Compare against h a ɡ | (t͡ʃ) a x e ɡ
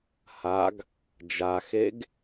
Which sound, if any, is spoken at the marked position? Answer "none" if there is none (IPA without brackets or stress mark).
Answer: d͡ʒ